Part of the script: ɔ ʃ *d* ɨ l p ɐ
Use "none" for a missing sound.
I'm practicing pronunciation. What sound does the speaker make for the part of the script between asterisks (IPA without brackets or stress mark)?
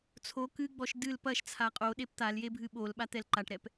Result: d